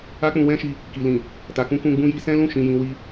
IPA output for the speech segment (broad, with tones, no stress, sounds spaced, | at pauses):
a˦ k͡p ũ˧ w ɛ̃˦ ʃ i˧ | k i˨ l ĩ˨ | t a˨ k ũ˧ k ũ˧ ɡ͡b ũ˧ j i˧ s ɛ̃˦ l ũ˦˨ ʃ ĩ˨ j ĩ˨ w i˧